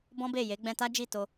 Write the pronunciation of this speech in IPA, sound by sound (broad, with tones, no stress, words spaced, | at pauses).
bɔ̃˦be˦˨je˨˦ ɡ͡bɛ̃˧ta˦d͡ʒi˦˨ to˧